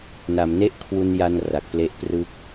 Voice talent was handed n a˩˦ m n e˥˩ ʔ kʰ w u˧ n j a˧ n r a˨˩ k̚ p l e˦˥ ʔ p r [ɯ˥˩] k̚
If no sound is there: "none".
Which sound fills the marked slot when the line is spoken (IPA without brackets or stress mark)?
ɯ˥˩